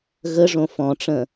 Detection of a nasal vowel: present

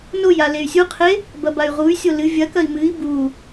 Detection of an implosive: absent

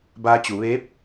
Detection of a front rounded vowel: absent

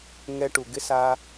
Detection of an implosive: absent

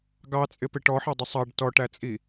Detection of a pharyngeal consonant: present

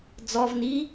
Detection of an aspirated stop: absent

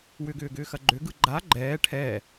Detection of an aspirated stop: present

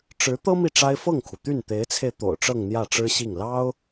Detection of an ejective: absent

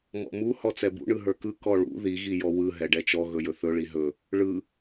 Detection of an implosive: absent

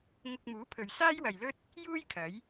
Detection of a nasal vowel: absent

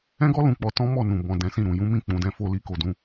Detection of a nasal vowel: present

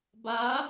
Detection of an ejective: absent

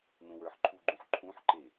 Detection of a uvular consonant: absent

